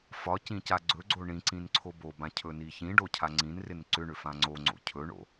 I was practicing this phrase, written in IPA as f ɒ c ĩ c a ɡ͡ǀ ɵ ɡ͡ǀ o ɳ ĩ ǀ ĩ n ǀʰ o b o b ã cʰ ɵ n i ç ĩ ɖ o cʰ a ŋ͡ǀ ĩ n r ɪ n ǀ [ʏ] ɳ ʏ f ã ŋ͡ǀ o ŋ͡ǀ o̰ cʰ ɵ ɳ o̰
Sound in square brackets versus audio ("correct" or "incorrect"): correct